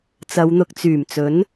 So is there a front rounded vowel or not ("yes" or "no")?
yes